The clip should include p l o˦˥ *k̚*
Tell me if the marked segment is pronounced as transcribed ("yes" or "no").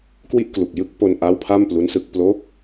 yes